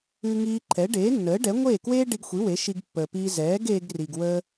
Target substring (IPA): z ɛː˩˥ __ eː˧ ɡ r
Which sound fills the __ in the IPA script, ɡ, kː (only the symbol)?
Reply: ɡ